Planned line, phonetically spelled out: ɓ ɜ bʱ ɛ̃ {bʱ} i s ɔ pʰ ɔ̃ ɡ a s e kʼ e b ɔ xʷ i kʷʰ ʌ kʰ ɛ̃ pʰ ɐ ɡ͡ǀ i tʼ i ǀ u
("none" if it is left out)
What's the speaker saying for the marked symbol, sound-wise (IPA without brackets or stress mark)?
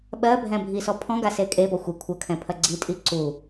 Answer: bʱ